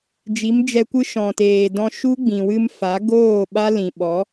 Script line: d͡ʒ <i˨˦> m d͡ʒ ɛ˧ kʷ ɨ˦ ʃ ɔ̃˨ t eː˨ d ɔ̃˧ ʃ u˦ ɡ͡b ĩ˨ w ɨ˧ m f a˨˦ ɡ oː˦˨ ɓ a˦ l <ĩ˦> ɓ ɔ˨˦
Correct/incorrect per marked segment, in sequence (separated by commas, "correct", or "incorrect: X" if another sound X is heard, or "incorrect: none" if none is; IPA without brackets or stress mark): correct, incorrect: ĩ˨